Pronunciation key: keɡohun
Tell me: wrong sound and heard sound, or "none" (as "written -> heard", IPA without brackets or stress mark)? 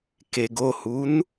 none